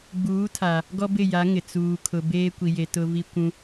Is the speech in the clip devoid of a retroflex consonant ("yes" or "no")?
yes